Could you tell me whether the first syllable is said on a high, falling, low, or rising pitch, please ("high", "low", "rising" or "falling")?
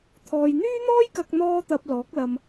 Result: low